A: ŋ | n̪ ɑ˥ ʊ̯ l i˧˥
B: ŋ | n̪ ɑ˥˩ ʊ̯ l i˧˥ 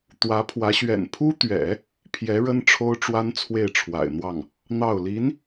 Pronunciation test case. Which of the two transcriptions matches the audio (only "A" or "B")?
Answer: B